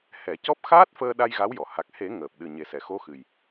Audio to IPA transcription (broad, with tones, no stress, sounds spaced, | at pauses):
h ɛ˨˩˦ c ɔ˦˥ p̚ x aː˦˥ t̚ f əː˧ ɗ a˧ j ɣ a˧˥ w j ɔ˨˩˨ h a˨˩ k̚ h e˨˩˦ ŋ əː˨˩ p̚ ɗ ɨ˨˩ ɲ e˨˩ s ɛ˨˩˨ x o˧˥ x ɨ˨˩ j